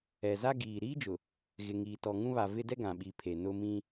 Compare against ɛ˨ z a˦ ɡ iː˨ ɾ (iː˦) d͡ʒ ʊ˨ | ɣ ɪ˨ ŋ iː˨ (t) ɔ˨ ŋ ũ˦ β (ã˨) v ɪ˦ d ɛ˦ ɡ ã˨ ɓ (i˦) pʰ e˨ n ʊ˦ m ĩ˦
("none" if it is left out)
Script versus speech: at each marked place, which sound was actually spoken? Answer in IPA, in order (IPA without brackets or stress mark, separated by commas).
iː˦, t, a˨, i˨˦